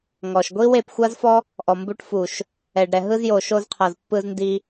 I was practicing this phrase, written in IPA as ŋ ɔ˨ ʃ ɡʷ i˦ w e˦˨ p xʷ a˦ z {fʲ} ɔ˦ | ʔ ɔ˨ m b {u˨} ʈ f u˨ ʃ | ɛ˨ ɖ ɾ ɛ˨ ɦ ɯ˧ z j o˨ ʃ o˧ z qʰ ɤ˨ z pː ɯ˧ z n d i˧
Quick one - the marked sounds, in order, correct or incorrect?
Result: incorrect: f, incorrect: u˧

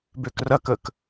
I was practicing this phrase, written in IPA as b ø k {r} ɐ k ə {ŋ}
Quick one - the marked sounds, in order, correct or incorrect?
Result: correct, incorrect: k

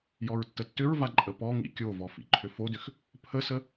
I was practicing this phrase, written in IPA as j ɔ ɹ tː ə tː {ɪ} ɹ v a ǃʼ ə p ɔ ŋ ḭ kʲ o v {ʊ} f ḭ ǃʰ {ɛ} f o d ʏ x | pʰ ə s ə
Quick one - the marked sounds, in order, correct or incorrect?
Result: incorrect: ʏ, incorrect: ɔ, incorrect: ʏ

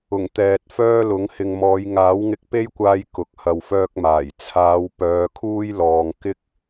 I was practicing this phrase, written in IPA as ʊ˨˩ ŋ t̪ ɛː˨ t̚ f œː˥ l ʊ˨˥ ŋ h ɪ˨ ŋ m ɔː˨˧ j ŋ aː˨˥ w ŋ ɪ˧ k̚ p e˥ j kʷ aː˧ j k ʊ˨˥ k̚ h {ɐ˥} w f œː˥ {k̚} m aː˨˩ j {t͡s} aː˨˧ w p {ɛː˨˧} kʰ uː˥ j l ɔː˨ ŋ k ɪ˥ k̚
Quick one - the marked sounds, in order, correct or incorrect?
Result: incorrect: ɐ˧, correct, incorrect: t͡sʰ, incorrect: œː˨˧

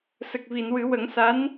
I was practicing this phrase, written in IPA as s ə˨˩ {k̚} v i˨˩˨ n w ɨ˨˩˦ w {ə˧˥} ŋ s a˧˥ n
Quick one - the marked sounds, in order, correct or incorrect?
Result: correct, incorrect: ə˨˩˦

